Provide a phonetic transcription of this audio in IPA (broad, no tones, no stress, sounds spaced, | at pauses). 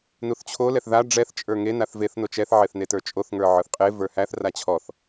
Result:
n u θ t͡ɕʰ o l ɛ θ ð a ɖ͡ʐ ɛ θ t͡ʃʼ ə˞ ŋ e n a θ v e θ n o t͡ʃ ɛ θ ʕ e θ n e t ə˞ t͡ʃʼ o θ ŋ ə˞ ʕ ə˞ θ qʼ e v ə˞ h æ θ r a t͡ɕʰ ɔ θ